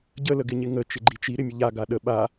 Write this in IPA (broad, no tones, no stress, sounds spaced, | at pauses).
ɟ ə l ə ɡ ɪ ɲ ɪ ŋ ə t͡ʃ ɪ ɡ͡ǃ i t͡ʃ i ɾ ɪ mʲ ə ʎ a ɡ a ɗ ə ɓ a